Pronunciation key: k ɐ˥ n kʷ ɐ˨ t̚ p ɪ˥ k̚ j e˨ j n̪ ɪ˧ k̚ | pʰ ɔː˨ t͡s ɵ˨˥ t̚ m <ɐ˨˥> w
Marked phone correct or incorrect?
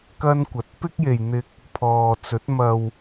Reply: incorrect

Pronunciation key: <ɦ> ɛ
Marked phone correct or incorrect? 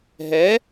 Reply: correct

